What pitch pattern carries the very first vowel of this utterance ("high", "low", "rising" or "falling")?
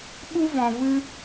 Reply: high